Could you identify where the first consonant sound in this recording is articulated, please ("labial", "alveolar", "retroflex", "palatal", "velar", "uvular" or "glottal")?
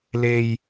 alveolar